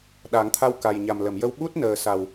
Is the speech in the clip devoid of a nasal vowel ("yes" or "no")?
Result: yes